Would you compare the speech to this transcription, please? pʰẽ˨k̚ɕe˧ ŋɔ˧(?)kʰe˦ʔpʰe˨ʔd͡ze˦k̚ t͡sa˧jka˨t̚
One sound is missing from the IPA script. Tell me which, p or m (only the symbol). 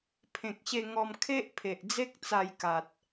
m